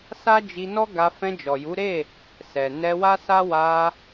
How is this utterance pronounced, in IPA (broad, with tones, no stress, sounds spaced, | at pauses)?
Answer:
s a˦ d͡ʒ i˧ n ɔ˦ ɡ a˧ f ɛ̃˧ d͡ʒ ɔ˨ j u˨˦ ɾ e˦˨ | s ɛ˨ n ɛ˧ w a˦ s a˦ w a˧